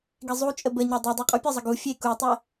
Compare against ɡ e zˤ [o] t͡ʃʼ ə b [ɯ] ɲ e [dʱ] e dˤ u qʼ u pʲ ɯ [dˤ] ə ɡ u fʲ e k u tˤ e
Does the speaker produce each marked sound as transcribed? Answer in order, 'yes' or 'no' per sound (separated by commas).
no, no, no, no